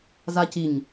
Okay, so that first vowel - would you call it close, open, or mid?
open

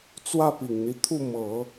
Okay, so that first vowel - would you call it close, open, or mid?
open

